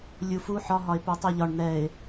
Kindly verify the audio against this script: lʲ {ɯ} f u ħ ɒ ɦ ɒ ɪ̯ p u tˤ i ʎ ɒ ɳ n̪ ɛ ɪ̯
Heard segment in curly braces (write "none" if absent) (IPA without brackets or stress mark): u